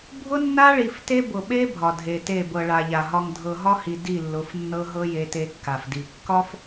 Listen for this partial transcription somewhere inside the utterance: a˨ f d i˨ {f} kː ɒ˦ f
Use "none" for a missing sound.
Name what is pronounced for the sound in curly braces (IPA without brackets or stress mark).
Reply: none